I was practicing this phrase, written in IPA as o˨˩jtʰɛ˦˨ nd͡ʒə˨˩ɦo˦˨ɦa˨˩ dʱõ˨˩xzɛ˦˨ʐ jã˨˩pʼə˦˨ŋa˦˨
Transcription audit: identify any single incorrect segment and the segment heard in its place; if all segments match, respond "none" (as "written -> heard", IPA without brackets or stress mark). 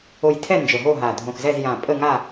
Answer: ʐ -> z